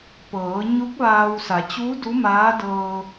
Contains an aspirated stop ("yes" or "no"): no